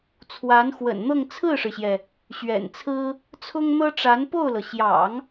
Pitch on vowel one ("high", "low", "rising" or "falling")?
rising